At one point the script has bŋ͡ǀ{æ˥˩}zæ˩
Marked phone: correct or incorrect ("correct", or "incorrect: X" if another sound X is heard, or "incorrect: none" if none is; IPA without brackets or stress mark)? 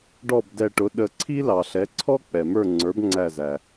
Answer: incorrect: æ˧˩